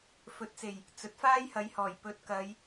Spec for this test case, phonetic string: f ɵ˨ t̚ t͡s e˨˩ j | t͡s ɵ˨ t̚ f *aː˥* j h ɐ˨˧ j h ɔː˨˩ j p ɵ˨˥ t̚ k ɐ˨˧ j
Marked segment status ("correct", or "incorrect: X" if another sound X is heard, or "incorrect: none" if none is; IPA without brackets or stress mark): correct